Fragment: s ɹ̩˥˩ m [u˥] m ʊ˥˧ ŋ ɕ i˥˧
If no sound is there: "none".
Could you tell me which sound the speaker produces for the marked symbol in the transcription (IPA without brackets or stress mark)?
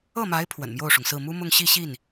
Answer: u˥